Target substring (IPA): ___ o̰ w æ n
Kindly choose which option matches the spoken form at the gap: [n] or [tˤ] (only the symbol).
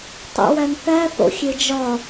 tˤ